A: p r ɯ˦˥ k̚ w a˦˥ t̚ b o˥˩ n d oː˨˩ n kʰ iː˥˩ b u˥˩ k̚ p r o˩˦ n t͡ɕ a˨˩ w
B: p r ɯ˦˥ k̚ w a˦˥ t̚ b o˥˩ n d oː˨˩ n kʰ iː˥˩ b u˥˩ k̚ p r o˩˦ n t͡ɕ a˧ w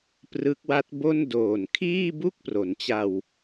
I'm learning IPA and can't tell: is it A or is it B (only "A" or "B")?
B